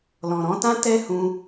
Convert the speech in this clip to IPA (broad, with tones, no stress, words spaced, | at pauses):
lɔ̃˨ɾɔ̃˧tã˦ tɛ˦hũ˧